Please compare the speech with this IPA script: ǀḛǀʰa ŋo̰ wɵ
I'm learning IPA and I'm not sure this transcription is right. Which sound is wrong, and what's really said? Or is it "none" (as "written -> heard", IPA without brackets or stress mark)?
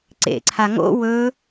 none